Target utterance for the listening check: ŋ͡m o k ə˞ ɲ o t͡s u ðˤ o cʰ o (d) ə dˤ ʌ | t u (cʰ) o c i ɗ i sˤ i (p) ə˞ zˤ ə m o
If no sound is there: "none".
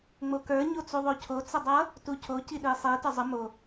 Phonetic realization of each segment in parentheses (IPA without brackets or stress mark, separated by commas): t͡s, cʰ, t